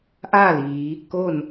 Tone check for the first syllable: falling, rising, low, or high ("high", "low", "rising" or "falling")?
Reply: falling